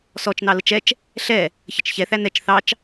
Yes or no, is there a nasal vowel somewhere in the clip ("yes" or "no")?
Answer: no